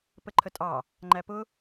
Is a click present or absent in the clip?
present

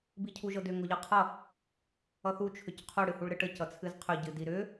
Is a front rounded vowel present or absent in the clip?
present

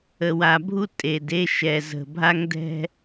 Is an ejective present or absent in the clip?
present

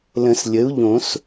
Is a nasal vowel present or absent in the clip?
present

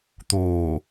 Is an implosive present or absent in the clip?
absent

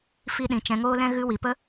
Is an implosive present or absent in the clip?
present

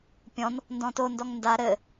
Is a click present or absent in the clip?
absent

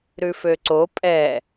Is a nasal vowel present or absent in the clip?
absent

